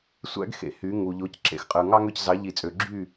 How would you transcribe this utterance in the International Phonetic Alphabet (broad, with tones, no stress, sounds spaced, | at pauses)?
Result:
sʷ æ̰˥ ɡ x ḛ˨˩˦ h y˨˥ ŋ u˨ ʎ o˨˥ c ǁ ḛ˨˩˦ x qʼ ɯ˨ ŋ ɑ˥ ŋ ø˥˨ c z ɑ˨˥ ʎ i˨˩˦ t͡sʼ ø˨ ɡ͡ǁ y˥˨